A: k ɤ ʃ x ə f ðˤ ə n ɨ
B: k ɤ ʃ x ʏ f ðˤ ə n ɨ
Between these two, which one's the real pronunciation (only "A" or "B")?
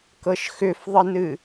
B